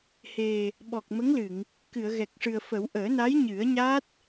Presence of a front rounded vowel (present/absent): absent